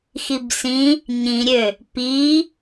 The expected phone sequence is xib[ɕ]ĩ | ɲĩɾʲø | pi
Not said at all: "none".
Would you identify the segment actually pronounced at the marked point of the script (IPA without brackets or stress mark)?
s